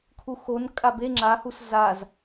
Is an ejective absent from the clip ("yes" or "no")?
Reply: no